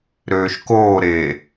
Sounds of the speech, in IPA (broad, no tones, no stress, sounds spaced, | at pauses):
ɾ øː ʃ k oː ɾ eː